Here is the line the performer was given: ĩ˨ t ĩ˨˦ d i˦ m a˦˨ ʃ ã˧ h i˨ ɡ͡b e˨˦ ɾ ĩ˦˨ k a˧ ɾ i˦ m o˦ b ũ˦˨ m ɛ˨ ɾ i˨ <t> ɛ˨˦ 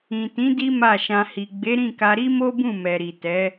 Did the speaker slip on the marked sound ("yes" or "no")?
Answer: no